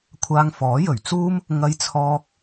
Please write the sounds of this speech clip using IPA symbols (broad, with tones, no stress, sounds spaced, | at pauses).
kʷʰ aː˧ ŋ f ɔː˨˥ j ɵ˨˩ ɥ t͡s uː˥ m | ŋ ɐ˧ j t͡sʰ ɔː˧ k̚